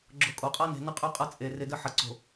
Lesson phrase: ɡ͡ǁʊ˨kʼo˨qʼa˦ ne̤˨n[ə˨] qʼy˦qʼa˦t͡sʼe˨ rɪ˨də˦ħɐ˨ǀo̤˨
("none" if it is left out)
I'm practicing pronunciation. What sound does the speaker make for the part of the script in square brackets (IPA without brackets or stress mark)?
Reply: ə˦